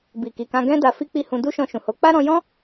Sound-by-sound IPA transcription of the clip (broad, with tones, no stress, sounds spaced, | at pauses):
b i˨ k i˨ k ã˧ ɡ ɛ̃˦ d a˧ f i˦ k͡p i˦˨ h ũ˧ d u˦ ʃ ɔ̃˧ ʃ ũ˨ h o˨˦ k͡p a˦ ɾ ɔ̃˧ j ɔ̃˦